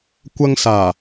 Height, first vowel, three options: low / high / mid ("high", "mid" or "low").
low